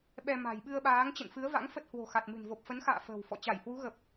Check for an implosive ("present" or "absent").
present